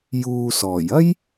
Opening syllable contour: low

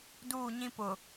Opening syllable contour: falling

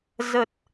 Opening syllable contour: low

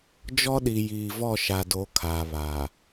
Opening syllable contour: high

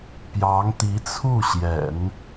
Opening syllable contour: rising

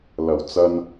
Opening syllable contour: low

